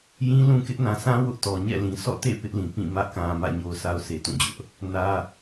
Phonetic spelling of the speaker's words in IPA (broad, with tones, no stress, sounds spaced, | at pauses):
j ĩ˦ l ũ˦ k ɪ˦ ʔ n ã˨ sʰ ã˦ w ʊ˦ ʔ t ɔ˨ ɲ ɛ̰˦˨ l ĩ˨ sʰ ɔ̰˦˨ t ḛ˦˨ p ɪ˦ ʔ l ĩ˨ p ĩ˦˨ m ä˦ ʔ k ã˨ m ä̰˦˨ ɲ o˨ ʊ̯ sʰ a˨ ʊ̯ sʰ e˨ t ũ˦˨ d͡ʑ ʊ˦ ʔ | n ä˦